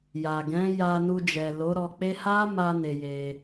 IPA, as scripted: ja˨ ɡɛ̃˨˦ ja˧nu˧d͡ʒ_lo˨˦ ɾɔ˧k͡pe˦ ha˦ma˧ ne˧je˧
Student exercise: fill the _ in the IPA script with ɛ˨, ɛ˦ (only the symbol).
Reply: ɛ˨